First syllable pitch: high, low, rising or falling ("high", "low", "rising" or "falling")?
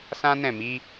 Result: high